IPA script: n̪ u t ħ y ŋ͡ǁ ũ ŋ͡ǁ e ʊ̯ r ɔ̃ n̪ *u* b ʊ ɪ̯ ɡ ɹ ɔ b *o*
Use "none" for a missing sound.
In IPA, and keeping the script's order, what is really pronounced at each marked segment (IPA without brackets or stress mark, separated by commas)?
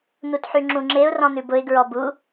ʉ, u